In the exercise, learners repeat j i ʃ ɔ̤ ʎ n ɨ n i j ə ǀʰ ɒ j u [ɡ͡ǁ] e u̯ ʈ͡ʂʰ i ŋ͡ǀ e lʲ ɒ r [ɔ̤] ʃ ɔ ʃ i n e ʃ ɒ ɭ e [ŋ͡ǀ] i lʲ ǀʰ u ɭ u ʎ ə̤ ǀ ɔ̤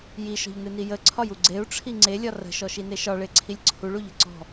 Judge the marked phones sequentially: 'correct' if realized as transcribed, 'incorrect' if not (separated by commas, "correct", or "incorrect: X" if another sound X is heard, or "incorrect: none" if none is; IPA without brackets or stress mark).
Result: incorrect: ɡ͡ǀ, incorrect: ə̤, incorrect: ǀʰ